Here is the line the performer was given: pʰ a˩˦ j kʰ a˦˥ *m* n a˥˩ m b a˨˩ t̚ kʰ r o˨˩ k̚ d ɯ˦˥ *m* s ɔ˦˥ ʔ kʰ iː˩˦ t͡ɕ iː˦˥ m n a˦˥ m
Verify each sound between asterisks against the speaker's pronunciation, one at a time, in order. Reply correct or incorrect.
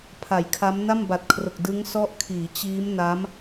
correct, incorrect

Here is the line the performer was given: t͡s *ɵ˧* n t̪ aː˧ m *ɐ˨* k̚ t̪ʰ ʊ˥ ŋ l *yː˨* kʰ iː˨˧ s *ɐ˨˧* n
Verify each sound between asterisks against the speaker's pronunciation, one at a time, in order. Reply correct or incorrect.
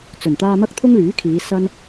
incorrect, incorrect, incorrect, incorrect

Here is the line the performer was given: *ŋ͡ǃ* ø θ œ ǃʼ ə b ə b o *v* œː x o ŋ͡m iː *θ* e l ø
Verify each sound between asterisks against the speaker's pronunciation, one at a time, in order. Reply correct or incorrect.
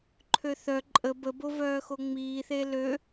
incorrect, correct, correct

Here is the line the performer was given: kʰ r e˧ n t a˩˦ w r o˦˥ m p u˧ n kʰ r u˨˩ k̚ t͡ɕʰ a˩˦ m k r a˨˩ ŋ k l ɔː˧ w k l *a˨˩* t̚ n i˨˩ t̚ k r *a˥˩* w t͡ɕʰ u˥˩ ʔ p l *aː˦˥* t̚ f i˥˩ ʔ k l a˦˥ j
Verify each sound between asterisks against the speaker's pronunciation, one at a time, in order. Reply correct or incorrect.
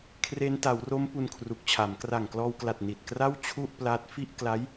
correct, correct, correct

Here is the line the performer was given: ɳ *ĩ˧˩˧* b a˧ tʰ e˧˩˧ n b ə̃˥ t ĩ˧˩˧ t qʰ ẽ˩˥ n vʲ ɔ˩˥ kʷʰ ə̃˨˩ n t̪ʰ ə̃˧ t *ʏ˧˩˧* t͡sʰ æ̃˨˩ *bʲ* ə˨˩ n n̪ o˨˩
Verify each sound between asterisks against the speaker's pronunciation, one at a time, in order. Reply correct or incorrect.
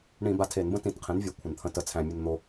correct, incorrect, incorrect

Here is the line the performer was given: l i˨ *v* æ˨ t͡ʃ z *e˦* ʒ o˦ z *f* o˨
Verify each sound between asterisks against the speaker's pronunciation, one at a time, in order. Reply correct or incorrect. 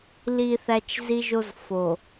incorrect, incorrect, correct

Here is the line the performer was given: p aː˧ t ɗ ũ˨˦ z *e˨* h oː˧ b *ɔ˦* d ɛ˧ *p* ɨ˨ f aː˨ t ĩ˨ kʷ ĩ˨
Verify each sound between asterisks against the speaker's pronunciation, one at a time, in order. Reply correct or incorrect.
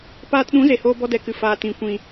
correct, correct, incorrect

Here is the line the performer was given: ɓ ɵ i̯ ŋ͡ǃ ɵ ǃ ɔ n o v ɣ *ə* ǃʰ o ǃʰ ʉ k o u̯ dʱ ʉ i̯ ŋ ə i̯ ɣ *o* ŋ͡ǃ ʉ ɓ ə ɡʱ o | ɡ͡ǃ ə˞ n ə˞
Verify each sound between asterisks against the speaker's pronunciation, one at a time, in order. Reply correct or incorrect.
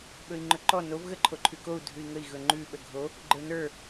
correct, incorrect

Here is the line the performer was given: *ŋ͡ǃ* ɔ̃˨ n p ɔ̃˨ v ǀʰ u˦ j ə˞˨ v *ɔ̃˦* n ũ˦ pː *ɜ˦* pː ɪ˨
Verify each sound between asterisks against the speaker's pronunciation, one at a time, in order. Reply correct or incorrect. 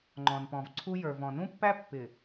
correct, incorrect, incorrect

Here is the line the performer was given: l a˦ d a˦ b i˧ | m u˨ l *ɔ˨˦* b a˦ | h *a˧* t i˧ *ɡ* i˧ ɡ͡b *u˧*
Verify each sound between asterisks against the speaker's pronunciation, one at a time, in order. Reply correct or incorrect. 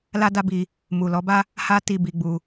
correct, incorrect, incorrect, correct

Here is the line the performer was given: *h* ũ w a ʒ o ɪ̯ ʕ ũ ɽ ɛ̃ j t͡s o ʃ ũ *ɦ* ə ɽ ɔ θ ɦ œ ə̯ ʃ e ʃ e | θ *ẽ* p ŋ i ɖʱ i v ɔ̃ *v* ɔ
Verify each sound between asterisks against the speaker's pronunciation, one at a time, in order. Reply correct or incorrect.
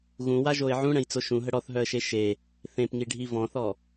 incorrect, correct, correct, incorrect

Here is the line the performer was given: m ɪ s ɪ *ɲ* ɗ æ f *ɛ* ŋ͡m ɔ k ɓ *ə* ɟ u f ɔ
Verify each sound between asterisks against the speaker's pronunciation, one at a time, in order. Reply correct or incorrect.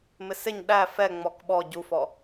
correct, correct, incorrect

